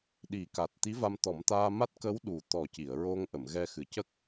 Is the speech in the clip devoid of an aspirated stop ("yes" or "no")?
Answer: yes